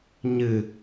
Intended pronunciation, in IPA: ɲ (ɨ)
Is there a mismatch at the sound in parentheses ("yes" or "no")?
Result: no